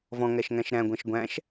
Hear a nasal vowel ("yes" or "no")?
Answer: yes